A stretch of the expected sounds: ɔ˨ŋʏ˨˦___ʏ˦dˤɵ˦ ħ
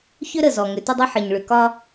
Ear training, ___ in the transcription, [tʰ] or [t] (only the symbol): t